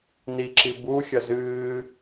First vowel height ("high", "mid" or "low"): high